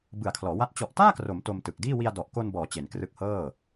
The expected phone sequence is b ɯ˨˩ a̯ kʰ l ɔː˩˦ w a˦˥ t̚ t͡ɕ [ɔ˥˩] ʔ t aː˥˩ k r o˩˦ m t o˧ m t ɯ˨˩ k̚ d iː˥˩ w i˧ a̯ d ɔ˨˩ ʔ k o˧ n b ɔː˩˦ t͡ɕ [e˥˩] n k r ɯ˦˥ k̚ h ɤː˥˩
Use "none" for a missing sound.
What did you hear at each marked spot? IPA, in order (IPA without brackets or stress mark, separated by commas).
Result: ɔ˨˩, e˩˦